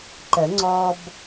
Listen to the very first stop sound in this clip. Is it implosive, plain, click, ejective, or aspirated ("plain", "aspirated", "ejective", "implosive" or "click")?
click